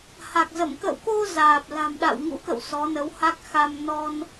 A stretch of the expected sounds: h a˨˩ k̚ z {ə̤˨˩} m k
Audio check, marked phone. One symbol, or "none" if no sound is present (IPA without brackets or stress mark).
ə˧˩